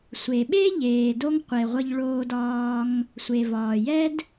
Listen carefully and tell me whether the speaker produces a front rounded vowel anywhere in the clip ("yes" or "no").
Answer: no